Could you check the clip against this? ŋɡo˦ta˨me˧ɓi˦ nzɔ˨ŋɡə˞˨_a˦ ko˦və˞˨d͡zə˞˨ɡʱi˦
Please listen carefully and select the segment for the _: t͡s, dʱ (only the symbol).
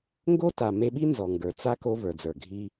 t͡s